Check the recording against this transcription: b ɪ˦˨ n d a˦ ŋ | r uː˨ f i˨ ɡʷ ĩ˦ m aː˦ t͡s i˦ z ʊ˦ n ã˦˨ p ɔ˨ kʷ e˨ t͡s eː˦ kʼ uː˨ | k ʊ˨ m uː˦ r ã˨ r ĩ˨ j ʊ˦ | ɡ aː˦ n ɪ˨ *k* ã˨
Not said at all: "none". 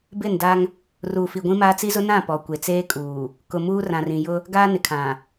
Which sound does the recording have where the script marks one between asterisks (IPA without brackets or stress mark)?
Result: kʰ